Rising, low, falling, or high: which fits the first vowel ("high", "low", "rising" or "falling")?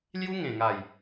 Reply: high